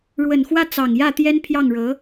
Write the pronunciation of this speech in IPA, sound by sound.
ɻ w ə˨˩ n x w ä˥˩ t͡s ɑ˨˩ ŋ j ä˥˩ t̪ j ɛ˥ n pʰ j ɑ˥˩ ŋ ɻ ɤ˧˥

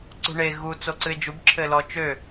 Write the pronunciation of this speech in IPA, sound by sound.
ǀ ṳ ɳ e ɣ u t͡s o ǀ ɨ e̯ d͡ʒ u b ǁʰ ɘ l ɔ t͡ʃ ø

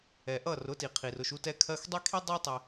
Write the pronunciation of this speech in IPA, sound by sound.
ɛ˩ ʔ ʌ˥˩ r ʊ˩˥ t i˩ qʰ i˩ r ʊ˥˩ ʃ u˧ t ɛ˧ kʰ ɜ˧ x dˤ ɛ˥ kʰ i˥ dˤ ɑ˥ tˤ ɛ˧

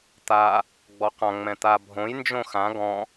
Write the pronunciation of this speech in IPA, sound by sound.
t̪ a | ɡ͡b ɔ q ã ŋ͡m ɛ̃ t̪ a bʱ õ j n d͡ʒ õ x ã ɡ ɔ̃

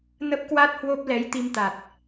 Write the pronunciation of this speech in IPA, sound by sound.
n ə˦˥ p̚ k w a˦˥ t̚ h w o˦˥ p̚ l ɛ˨˦ j t̪ i˧ m t̪ a˨˩ t̚

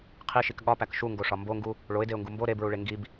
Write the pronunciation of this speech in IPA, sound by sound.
qʰ i ʃ i k ɠ ɒ p æ k ʃ u ŋ ɡ o ʂ ɒ m b o ŋ ɡ u | ɭ o ɪ̯ d e ʊ̯ ŋ ɡ u m b o ɾ e b ɹ u ɭ e ŋ ɡ i b

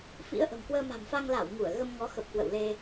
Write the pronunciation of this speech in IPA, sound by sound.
f ḭ˧˥ ə̯ ʔ ə̤˨˩ m k w əː˧ m a̤˨˩ m f a˧ ŋ l a˧˩ w ŋ u˧˩ ə̯ ɣ ə˧ m ŋ ɔ˨˦ x ə˨˩ p̚ k w ə̰˧˨ w l e˧

